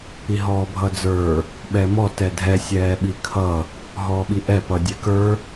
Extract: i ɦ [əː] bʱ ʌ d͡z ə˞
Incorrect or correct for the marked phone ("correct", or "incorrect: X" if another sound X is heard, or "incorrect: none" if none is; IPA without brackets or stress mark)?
incorrect: ɔː